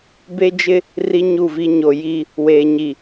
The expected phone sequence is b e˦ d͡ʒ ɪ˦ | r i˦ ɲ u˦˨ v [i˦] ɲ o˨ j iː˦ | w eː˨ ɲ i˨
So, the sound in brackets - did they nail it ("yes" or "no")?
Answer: yes